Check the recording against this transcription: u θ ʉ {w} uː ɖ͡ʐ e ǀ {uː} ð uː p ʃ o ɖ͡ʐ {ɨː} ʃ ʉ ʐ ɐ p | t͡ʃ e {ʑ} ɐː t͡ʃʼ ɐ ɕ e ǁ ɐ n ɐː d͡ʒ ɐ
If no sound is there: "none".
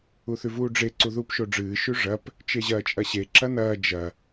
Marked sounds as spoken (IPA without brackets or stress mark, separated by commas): v, u, ɨː, ʑ